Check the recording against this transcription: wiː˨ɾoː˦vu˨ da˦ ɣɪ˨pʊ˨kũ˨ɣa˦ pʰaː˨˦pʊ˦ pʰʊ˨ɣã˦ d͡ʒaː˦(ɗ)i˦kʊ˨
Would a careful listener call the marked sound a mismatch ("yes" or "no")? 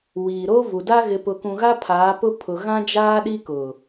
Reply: no